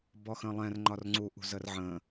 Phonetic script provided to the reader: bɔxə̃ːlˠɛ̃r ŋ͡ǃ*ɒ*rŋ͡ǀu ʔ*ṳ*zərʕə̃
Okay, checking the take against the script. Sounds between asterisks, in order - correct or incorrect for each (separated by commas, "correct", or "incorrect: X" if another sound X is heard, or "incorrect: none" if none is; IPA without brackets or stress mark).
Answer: correct, correct